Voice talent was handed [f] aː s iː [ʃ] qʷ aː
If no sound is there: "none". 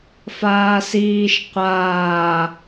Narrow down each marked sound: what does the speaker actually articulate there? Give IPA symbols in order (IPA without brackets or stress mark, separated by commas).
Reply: f, ʃ